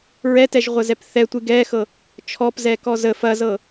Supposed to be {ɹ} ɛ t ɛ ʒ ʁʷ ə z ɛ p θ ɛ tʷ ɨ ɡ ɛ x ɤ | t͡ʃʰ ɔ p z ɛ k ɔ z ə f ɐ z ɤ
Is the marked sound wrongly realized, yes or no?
no